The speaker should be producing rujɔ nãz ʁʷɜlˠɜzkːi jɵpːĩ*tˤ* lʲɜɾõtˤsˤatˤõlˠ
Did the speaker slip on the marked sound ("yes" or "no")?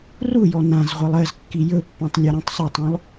no